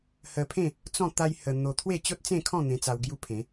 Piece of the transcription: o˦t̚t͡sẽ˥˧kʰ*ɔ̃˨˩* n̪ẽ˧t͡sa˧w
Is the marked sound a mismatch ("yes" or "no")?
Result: yes